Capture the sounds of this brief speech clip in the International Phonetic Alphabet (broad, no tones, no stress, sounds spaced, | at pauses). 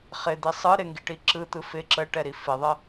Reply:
χ ɪ d̪ i sˤ ɯ ɾ ɪ ŋ ɡ i ʈ i ǁ ɯ t̪ ɯ f ɪ ǁ ə ʈ ɛ ɾ i f ɪ ðˤ ə